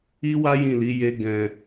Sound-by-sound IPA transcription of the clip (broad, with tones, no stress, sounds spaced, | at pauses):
i˦ w a˦ j ĩ˦˨ l i˨˦ j e˦ ɡ ɛ̃˧